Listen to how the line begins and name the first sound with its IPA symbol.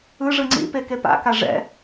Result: ɯ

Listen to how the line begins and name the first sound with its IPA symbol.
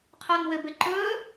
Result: qʰ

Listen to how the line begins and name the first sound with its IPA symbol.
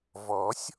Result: v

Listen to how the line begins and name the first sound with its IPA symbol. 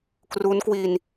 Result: k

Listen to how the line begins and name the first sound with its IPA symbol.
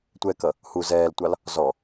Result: tʷ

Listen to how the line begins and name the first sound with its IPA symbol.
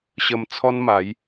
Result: ɕ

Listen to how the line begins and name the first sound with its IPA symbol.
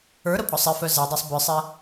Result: ə˞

